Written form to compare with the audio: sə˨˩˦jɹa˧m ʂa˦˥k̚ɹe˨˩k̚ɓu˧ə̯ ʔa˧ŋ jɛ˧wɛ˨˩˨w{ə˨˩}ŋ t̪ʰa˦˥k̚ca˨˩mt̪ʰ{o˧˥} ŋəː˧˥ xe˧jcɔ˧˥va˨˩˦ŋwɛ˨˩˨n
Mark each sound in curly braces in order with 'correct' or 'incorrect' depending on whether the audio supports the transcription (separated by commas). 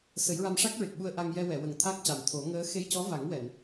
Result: correct, incorrect